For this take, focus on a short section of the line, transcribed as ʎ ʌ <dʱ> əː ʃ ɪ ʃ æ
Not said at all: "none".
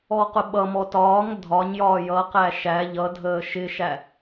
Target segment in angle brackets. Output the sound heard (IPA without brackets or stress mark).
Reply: dʱ